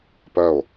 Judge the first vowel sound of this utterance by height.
mid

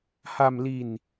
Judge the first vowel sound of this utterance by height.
low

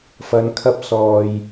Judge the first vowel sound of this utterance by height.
low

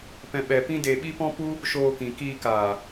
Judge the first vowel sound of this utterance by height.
mid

